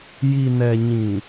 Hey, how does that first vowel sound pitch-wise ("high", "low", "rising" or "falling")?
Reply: low